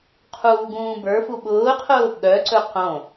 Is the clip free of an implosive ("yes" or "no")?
no